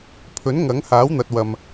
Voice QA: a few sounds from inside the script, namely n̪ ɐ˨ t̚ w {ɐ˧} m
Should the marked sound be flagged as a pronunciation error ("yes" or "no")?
yes